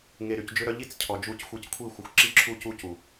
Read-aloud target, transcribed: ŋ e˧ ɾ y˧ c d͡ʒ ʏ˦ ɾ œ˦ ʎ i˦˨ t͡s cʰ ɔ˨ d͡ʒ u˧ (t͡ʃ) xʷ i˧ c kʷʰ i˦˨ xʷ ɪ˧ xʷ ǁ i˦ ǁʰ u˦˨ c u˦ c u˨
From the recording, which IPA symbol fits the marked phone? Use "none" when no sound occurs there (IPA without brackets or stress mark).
c